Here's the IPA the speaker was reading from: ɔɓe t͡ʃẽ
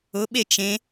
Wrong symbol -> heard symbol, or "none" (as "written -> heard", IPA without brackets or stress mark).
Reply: ɔ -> ʊ